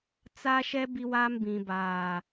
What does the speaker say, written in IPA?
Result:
t͡s a˦ ʃ ɛ˦ b i˦ w aː˦ m b ĩ˨ b aː˨

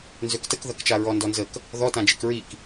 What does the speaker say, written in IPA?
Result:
n z ø k t ə k ð ɐ k t͡ʃ a ɹ ɔ n d ɔ n z ə k | ð ɔ t ã d͡ʒ i k ɹ i k

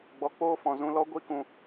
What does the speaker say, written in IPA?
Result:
ɡ͡b ɔ˨ k͡p oː˧ f ɔ̃˨ z ũ˧ l ɔ˦ ɡʷ i˦ k ũ˧

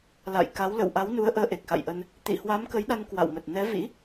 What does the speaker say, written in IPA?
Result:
l a̰˧˨ j k a˨˦ w l ə̰˧˨ w ʔ a˨˦ w n u˨˦ ə̯ ʔ əː˨˦ ʔ e˨˩ k̚ x a̰˧˨ j ʔ ə˧ n | t̪ ḭ˧˨ h w a˨˦ m k ə˨˦ j ɗ a˧ n k w a̰˧˨ w m ə˨˩ t̚ n ɛ˨˦ v ḭ˧˥

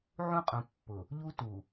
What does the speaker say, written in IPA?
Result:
ʕ ũ˦ qʼ ũ˨ pː ʊ˨ | ʎ u˦ t u˨

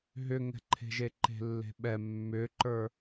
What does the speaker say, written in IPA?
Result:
ɦ ʏ ŋ ɛ̤ ǃʰ e̤ ʒ e ǃ e̤ lː e̤ ɓ ɛ mː ʏ ǃ ə˞

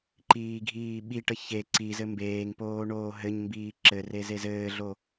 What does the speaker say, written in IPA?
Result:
ǃ iː ɡʱ iː ɓ i ʈ ə ç e ǀ i z ɘ m b eː ŋ p oː ɳ oː ɦ ɘ ɲ m b iː ǁ ɘ r e z e z ɘː ɮ o

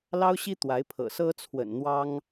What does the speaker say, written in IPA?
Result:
l ɑ˥ ʊ̯ ɕ i˥ t̪ w a˧˥ ɪ̯ pʰ ɤ̰˨˩ s ɤ˥ t͡sʰ w ə̰˨˩ n n̪ w ɑ˥ ŋ

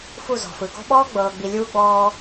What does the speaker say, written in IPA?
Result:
f u˦˨ z ɔ̤˨ f ɯ˨ ɡ ɔ̤˦ ɓ ɔː˦ ɡ͡b ɤː˨ ɡ͡b i˨ lʲ uː˦ ɡ͡b ɔː˦

